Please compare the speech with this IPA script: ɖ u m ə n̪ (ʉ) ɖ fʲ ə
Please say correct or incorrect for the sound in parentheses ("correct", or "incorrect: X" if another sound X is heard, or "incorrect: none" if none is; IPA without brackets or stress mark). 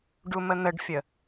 incorrect: ə